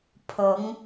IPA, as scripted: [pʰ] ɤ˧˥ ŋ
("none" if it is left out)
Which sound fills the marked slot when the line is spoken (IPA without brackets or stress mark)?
pʰ